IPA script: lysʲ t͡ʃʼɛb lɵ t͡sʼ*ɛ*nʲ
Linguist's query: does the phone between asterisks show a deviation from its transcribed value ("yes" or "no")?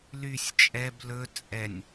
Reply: no